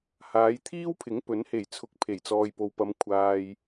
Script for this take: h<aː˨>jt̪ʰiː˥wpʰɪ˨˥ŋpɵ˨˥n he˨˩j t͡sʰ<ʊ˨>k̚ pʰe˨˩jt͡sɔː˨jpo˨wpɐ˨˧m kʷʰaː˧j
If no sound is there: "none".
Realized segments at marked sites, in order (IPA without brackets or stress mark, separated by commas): aː˨˧, ʊ˨